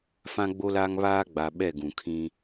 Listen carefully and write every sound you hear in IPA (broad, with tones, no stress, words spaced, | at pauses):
fã˦ɡ͡bo˦laː˦ŋ βaː˦ɡ͡ba˨ ɓɛ˦˨ɡũ˨kʰĩ˦